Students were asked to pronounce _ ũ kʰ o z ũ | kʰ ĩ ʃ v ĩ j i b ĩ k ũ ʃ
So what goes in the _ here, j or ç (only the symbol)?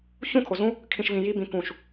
ç